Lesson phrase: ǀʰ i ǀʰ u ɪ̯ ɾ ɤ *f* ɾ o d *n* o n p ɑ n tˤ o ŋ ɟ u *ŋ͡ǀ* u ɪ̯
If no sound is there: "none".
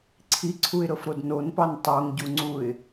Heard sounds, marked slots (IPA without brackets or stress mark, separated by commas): f, n, ŋ͡ǀ